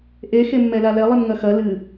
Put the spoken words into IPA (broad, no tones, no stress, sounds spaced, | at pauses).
ʔ e x e mː ɛ l a l ɛ lˠ i m ŋ ɐ x ɐ l ɨ